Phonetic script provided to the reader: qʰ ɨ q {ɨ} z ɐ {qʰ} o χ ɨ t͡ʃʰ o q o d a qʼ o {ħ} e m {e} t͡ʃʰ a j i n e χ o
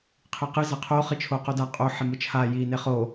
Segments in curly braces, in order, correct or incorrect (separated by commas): correct, correct, correct, incorrect